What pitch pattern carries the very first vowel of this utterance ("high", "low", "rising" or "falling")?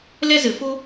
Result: high